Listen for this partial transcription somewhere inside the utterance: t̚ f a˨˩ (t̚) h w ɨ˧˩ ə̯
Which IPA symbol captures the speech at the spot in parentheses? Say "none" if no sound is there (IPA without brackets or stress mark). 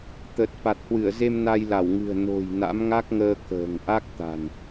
t̚